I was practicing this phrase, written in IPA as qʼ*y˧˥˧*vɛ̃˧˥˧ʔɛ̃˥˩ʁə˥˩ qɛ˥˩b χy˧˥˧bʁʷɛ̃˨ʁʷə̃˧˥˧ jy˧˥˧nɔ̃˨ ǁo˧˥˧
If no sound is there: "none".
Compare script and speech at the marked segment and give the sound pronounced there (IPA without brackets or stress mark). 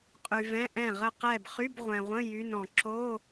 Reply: y˨